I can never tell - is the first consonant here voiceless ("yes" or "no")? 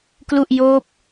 yes